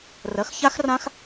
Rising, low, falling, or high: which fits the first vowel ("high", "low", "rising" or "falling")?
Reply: rising